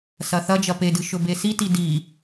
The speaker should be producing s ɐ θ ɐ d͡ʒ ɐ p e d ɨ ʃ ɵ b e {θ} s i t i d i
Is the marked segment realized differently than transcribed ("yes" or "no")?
yes